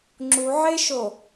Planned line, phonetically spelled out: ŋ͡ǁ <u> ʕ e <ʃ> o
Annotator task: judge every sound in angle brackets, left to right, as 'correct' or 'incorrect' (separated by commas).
correct, correct